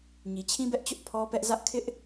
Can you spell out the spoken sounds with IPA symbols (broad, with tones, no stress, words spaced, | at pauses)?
ɲi˨t͡ɕʰĩ˦bɛ˦ʔt͡ɕʊ˦ʔ pʰɔ˦pɛ˦ʔzä˦ʔ kʰɪ˦ʔ